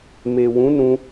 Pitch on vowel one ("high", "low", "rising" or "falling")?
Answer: low